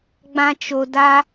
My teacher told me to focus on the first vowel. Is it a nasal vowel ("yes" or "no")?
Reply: yes